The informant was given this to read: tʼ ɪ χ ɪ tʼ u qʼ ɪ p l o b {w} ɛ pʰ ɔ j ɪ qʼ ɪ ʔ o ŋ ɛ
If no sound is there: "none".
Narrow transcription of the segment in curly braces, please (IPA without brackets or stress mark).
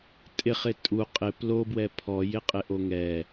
w